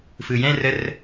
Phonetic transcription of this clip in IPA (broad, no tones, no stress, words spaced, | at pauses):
fɯjɛ̃ rər